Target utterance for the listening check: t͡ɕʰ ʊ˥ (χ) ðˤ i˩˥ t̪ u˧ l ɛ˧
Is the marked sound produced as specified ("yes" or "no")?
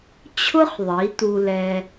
yes